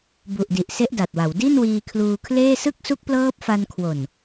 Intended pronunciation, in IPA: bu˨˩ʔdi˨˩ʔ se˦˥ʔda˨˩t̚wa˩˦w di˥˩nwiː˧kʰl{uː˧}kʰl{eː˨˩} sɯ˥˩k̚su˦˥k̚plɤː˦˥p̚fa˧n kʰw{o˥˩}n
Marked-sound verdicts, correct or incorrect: correct, incorrect: eː˥˩, incorrect: o˨˩

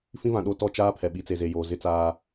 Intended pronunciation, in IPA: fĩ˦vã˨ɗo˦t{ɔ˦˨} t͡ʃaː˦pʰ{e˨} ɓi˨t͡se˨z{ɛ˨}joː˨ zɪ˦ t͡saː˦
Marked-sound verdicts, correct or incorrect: correct, incorrect: ɛ˨, incorrect: e˨

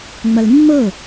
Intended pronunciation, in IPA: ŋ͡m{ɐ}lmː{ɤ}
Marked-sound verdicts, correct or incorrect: correct, correct

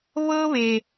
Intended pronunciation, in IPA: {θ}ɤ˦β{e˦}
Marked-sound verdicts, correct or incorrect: incorrect: β, incorrect: e˨

